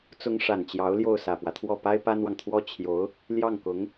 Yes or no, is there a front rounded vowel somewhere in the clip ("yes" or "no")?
no